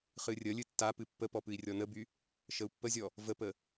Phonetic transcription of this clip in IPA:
χ ɨ rʲ ə lʲ ɨ tː a p ɨ pː ə p ɔ p ɨ i̯ rʲ ɔ n ə b y | ʃ ə u̯ pː ə zʲ ɔ | v ə p ə

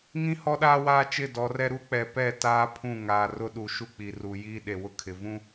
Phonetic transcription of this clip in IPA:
ŋ ĩ˦ h ɔ˦ ɗ aː˦ w aː˦ t͡ʃ ɪ˦˨ d ɔ˨˦ r ɛ˦ ɾ u˦ k͡p ɛ˨ p ɛ˦˨ t aː˦ pʰ ũ˦˨ ŋ aː˨ r ʊ˦ ɗ u˨ ʃ u˦ k͡p i˨ r u˨ j iː˦ ɗ e˨ w ʊ˦ kʰ ɪ˨ v ũ˦

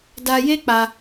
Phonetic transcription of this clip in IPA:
d a˧ j e˦ k͡p a˧

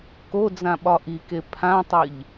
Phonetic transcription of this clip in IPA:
k o d͡z ã ɓ ɒ ʔ i k e pʰ ã tˤ ɨ ʎ

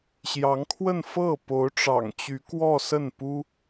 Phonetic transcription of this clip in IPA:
ɕ j ɑ˧˥ ŋ kʰ w ə˥˧ n f ɤ˥˩ p o˧˥ ʊ̯ ʈ͡ʂ ɑ̰˨˩ ŋ t͡ɕ y˧˥ k w ɔ˥˧ s ə˥˩ n p u˥

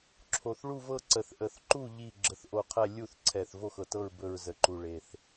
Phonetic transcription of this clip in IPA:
ǁʰ o˨˩ θ ɭ u˦˨ v ɤ˦˨ ǀ ə˨˩ θ ʔ ə˨˩ θ ǃ u˦˨ ʎ i˦˨ ɡ͡ǁ ə˨˩ θ ʔ o˨˩ qʰ ɛ˦˨ lʲ u˦˨ θ ǀʰ ɛ˨˩ θ v o˦˨ x ɤ˨˩ t ɤ˦˨ ɹ b ɵ˨˩ ɹ z ə˨˩ ǃ u˨˩ ɭ e˨˩ θ

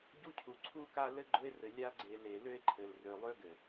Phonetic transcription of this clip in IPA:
ɟ u˦ cʰ u˨ ǀʰ u˦ k a˦ l ɘ˦ ɡ͡ǃ ʊ˦ e̯ r ɘ˨ lʲ a˦ ɡ͡ǀ e˨ l e˨ l ø˦ e̯ ǃʰ ɘ˨ l r ø˨ lˠ ø˦ ɡ ɘ˨

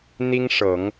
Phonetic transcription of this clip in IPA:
n̪ i˥ ŋ ʂ ɤ˨˩˦ ŋ

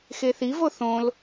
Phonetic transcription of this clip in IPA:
x e θ i v o θ õ l

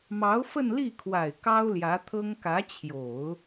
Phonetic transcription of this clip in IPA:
m ɑ˧˥ ʊ̯ f ə˥˧ n l i˥˩ kʰ w a˨˩ ɪ̯ k ɑ˥ ʊ̯ l j ä˧˥ t̪ʰ ɤ˥ ŋ k ä˧˥ t͡ɕʰ j o˨˩˦ ʊ̯

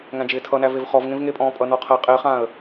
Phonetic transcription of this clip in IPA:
ŋ æ̃ d͡ʒ ɪː tʰ ʌ n æ v e v χ ɔ v ŋ ẽ v ŋ e pʼ ɔ̃ː pʼ ʌ n ɔ qʰ æ qʼ ɪ χ ã ə̯

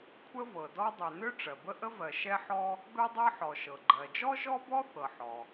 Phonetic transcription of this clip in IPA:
kʷʰ ə˥ v ɤ˩ d ɔ˥ dˤ ø˩ n ø˥ ʈ͡ʂ ɜ˩ b ə˥ ʔ ə˥ v ɜ˩ ʃ ɛ˥ ħ ɔ˥ | b ɛ˥ dˤ ɤ˥ ħ ɔ˩ ʃ ɤ˩ ɡ͡ǃ ɜ˩ d͡ʒ ɔ˥ ʒ ɔ˥ b ɔ˥ θ ɤ˩ ħ ɔ˩

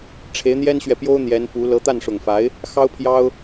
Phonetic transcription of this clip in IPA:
ʈ͡ʂʰ e˧˥ ɪ̯ n̪ j ɛ˥ n ɕ ɥ ɛ˨ p j o˥ ʊ̯ n̪ j ɛ˧˥ n p u˧˥ l ɤ˧˥ t̪ a˥˩ n ʂ ʊ˨˩ ŋ f a˧˥ ɪ̯ | x ɑ˥ ʊ̯ pʰ j ɑ˥ ʊ̯

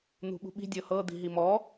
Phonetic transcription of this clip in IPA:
n̪ ṳ ɓ ṳ ɓ i̤ dʲ ɤ h ɤ d̪ i̤ ɦ i m ɔ

